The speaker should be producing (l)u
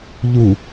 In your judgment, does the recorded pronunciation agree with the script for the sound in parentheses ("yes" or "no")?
no